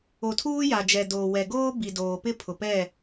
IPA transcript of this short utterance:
o˨tʰuː˦ja˨d͡ʒɛ˨ doː˨ wɛ˨ɡoː˦ bi˨ doː˨pɪ˦ pʰʊ˨pɛ˦˨

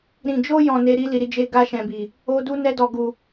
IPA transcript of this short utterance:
ɾĩ˨d͡ʒo˧jɔ̃˨ ne˧ ɾi˦ li˧ɾi˦d͡ʒe˦ ɡa˧ʃɛ̃˨bi˨ | o˦ du˦nɛ˦dɔ˧ɡu˧

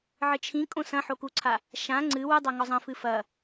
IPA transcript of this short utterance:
ʕɘt͡ʃʰĩkʼõ sɐ̃ħokuǀʰa | ʃã ŋ͡ǀɨ wɨdˤa ŋɔzˤɐ̃fɨ fɐ

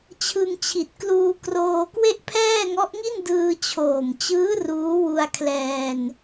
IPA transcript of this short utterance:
t͡ɕʰɯ˧ŋt͡ɕʰi˨˩t̚ kluː˧kroː˧ kwe˥˩ʔpʰɛː˥˩ŋɔ˦˥ʔŋi˥˩n dɯː˧t͡ɕʰoː˨˩mt͡ɕɯː˦˥ ruː˦˥wu˧a̯ kʰlɛː˧n

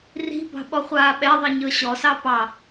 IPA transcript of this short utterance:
ri̤bɑ̤ ɓɔχʷaːɓɛðˤi ɲɤɕɔsɑ pɑ

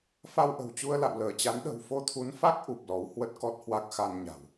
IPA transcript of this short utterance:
fa˧wʔə̤˨˩wt͡ɕu˧ə̯ la̰˧˨wləː˧˩t͡ɕa˨˦n ɗə̤˨˩wfo˧t̪ʰu˨˦nfa˦˥k̚ ʔu˨˩p̚lɔ˨˦w hwə˦˥t̚kɔ˦˥t̚hwa˦˥k̚ xa˧nɲa̤˨˩w

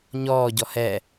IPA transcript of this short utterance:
ɲɔːɟɔ hɛ

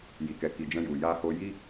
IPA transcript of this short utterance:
ji˨kɛ˨ki˨ d͡ʒɛ̃˧ju˨ ja˧ho˧ji˦

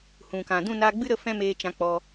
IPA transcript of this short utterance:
hũ˨kã˨ dũ˦˨naː˧ɡ͡bɨ˦ ɾə˦fɛ̃˦meː˧ t͡ʃã˧k͡pɔ˧

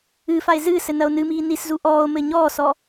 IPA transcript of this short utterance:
ɨːfae̯ zɨː sɘnɐo̯nɨmiː niszu ʔɔːo̯mɘ ɲɔːsɔ

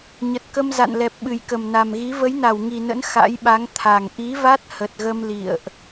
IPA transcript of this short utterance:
ɲə˨˩t̚kə˧mza̰˧˨nlɛ˨˩p̚ ɓɨ˨˩jkə˨˩mna˨˩mɣi˨˦ və˨˦jna˧˩wŋi˨˩nə̰˧˥n xa̰˧˥jɓa˨˦ŋ t̪ʰa˨˩ŋ ʔi˨˦va˦˥t̚ hə˨˩t̚ɣə˧m lḭ˧˨ə̯ʔ

